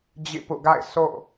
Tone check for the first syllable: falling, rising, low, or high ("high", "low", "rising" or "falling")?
falling